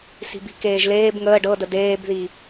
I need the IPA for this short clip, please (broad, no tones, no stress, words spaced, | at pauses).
si̤bi̤keːʒleːb ŋəː ɖɤdə deːbði